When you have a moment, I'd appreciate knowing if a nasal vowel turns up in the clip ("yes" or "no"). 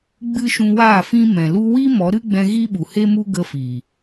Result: yes